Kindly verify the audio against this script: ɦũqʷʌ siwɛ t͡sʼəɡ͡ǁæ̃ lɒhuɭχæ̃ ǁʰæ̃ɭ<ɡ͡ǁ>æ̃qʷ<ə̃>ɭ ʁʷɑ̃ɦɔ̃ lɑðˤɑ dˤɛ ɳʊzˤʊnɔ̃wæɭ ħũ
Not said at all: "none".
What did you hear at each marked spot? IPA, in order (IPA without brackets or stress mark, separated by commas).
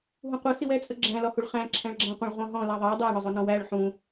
ɡ͡ǁ, ə̃